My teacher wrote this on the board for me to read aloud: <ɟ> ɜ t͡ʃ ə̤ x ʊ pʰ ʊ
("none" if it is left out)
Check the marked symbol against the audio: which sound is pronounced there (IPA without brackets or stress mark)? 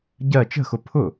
ɟ